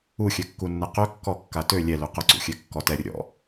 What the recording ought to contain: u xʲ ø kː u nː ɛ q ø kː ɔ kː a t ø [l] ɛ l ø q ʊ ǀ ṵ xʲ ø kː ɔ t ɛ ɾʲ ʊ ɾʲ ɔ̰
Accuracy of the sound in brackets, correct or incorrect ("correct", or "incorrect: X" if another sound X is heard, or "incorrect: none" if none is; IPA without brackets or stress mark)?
incorrect: lʲ